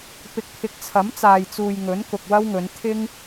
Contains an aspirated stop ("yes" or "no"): yes